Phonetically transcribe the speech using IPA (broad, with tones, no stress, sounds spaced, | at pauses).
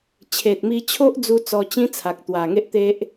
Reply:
t͡ɕʰ e˨ t̚ m i˧ t͡ɕʰ o˦ ʔ d͡z u˧ t͡s ɔ˧ t͡ɕ ĩ˦ t͡sʰ a˨ k̚ t̪ w a˨˩ ŋ e˦ ʔ t̪ e˦ ʔ